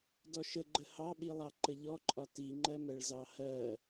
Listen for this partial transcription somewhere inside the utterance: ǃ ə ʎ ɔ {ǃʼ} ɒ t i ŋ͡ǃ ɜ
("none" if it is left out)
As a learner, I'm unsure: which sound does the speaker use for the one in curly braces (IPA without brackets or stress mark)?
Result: ǃʼ